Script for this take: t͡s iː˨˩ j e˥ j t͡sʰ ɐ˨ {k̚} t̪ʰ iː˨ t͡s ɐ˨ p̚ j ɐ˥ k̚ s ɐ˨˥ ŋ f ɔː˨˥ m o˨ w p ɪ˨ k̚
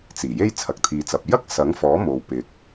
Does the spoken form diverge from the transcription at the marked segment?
no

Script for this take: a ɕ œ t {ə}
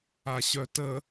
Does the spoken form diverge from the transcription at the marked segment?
no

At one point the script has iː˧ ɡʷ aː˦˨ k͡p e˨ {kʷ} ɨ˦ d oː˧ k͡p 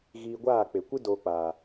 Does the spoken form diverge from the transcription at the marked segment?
no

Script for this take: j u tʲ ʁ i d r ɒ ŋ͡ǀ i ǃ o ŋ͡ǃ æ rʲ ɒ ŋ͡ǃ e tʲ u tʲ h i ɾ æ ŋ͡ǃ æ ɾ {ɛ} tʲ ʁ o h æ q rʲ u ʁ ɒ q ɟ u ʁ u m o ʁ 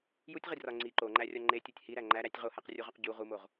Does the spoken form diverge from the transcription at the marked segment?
yes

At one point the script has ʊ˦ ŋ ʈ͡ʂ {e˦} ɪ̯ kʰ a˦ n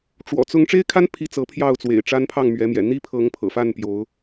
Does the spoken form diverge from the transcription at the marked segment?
no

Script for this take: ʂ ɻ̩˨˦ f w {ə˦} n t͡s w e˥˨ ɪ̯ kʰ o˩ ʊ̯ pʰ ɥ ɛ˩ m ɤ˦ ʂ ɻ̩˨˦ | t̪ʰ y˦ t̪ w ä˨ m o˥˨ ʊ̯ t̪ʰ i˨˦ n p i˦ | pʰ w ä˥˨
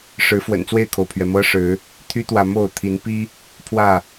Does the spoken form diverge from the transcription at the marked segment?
yes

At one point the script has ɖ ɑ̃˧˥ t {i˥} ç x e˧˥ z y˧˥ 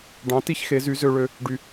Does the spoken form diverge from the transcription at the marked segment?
no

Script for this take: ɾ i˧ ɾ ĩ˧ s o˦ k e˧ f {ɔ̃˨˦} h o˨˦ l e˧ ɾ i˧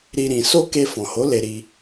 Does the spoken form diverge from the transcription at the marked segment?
yes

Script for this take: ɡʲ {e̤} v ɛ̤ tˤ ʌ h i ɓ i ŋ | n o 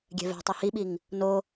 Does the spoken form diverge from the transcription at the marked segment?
yes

